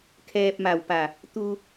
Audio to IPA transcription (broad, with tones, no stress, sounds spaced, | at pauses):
kʰ ɛː˧ p̚ m a˧˩ w p a˧˩ | t̪ u˧